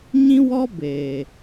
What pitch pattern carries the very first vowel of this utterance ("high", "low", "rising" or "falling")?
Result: high